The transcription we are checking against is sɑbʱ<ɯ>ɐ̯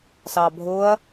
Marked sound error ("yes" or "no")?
yes